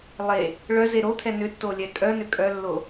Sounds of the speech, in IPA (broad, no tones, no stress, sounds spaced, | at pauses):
lˠ e | ɭ œ z e ɾ o t̪ʰ ɛ n ʏ tː o lʲ ɛ kʼ œ n ʏ kʼ œ lː o